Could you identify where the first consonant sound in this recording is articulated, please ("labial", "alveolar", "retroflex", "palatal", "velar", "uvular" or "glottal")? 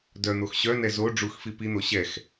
alveolar